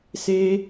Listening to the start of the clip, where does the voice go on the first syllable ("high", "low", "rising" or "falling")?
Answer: high